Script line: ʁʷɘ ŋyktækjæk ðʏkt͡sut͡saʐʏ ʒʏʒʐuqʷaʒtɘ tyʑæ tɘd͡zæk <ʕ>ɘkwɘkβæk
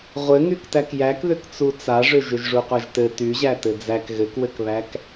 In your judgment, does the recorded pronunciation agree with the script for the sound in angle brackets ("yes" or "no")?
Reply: no